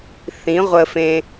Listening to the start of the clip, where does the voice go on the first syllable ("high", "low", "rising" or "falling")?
rising